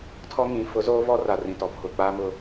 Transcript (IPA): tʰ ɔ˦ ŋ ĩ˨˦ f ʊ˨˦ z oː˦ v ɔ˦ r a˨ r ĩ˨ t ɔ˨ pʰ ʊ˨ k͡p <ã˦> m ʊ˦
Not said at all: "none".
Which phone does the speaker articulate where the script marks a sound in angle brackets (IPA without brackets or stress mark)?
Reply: a˦